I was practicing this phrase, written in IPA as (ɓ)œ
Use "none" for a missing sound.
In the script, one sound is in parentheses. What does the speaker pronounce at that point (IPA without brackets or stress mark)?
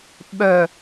ɓ